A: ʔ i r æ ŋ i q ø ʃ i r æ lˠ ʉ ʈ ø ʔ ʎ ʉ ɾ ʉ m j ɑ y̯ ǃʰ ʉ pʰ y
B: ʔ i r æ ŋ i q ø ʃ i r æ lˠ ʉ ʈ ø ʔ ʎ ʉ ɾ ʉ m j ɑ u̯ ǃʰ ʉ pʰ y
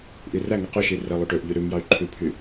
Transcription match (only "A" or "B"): A